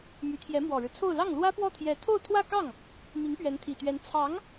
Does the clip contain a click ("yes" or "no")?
no